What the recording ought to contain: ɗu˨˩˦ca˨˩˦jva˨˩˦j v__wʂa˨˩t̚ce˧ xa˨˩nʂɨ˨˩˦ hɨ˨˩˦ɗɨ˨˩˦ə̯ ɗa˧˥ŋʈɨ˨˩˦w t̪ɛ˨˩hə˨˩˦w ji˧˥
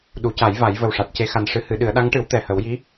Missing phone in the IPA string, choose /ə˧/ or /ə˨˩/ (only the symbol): ə˨˩